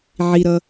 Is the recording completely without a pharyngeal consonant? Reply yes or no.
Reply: no